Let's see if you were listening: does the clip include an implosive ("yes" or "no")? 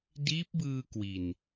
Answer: no